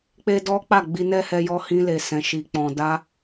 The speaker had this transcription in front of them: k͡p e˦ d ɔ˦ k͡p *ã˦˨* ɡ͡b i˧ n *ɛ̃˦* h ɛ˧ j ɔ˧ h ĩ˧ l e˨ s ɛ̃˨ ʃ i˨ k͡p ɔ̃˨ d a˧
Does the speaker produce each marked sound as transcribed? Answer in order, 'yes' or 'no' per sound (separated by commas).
no, no